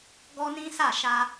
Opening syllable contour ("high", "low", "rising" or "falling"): high